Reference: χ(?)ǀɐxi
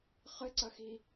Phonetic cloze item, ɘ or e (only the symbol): ɘ